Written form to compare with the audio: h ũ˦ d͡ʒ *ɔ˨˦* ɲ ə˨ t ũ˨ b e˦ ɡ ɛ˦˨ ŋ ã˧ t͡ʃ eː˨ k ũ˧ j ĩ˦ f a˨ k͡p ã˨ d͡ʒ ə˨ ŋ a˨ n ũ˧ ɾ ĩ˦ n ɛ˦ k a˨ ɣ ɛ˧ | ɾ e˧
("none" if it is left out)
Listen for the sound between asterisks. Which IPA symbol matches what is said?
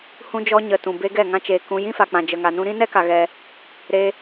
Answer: ɔ˦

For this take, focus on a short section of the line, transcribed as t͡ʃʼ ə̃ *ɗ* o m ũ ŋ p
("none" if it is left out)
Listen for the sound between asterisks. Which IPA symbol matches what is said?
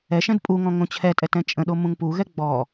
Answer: ɗ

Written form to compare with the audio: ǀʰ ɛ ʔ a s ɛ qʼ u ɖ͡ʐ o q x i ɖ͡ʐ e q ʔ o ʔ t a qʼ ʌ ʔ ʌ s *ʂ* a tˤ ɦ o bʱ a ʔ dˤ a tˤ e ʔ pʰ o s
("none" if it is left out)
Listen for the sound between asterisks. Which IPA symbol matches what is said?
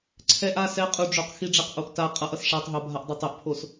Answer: ʂ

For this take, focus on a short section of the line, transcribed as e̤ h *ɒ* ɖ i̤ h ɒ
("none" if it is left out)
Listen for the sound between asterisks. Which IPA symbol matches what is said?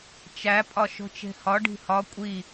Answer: ɒ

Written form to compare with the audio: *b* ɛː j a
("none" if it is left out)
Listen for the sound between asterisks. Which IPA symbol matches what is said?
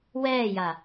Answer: w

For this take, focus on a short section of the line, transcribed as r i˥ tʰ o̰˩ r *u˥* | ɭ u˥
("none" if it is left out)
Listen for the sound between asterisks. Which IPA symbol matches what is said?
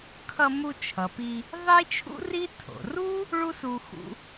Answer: u˥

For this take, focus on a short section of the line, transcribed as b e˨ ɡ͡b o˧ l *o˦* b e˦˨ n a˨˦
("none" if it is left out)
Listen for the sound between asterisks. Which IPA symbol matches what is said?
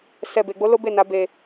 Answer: o˦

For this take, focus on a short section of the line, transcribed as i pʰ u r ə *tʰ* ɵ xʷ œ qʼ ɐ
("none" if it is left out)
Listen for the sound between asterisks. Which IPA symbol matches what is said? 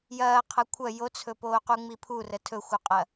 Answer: tʰ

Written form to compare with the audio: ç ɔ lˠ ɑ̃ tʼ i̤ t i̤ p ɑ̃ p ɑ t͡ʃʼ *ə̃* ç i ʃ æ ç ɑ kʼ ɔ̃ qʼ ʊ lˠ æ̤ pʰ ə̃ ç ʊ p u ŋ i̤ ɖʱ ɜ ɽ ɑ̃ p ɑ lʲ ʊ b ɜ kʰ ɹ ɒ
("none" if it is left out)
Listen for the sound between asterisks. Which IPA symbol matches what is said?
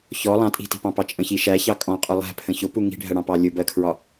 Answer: ə̃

